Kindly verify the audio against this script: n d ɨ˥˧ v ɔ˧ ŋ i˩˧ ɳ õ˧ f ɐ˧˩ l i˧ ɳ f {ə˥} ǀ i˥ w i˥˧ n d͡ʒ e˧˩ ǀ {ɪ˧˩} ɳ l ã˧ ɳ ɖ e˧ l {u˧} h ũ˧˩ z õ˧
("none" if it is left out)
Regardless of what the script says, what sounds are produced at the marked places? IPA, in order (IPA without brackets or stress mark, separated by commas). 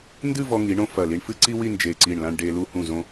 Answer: ɨ˥, i˧˩, u˧